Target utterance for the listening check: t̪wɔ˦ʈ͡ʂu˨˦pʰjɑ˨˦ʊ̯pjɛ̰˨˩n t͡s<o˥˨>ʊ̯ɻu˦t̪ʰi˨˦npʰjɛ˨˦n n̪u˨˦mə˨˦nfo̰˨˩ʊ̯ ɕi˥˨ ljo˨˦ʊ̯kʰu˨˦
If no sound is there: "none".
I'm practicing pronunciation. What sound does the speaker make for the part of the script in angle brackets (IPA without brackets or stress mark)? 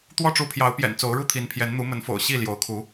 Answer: o˨˦